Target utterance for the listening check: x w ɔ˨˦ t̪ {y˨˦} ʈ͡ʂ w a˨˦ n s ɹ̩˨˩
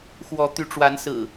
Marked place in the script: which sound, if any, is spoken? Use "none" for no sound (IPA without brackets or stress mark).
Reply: y˨˦